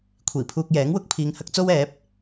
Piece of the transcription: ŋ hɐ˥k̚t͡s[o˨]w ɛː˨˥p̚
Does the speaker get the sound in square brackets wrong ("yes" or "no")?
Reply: yes